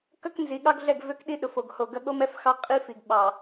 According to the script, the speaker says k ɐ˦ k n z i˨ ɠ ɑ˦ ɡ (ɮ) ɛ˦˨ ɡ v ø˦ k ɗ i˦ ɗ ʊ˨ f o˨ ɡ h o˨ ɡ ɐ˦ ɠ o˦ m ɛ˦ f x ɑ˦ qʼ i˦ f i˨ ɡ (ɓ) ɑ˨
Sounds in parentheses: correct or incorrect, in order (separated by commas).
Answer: correct, correct